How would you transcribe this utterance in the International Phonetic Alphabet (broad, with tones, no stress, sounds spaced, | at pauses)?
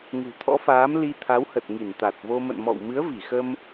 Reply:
ŋ ṳ˨˩ t̪ʰ ɔ̰˧˥ f aː˨˦ m l i˧ t̪ʰ a˨˦ w h ə˨˩ t̚ ŋ i˧˩ n t̪ a˨˩ t̚ v o˧ m ə̰˧˨ n m ɔ̰˧˨ w m ɨ˨˦ ə̯ v i˧˩ x ə˧ m